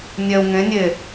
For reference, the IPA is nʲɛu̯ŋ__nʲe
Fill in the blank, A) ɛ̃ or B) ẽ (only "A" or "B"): B